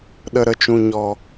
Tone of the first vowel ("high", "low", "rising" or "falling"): low